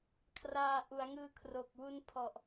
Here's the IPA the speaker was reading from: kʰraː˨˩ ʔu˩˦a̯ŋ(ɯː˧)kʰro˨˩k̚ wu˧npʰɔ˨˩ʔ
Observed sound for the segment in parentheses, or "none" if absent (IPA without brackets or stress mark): ɯː˧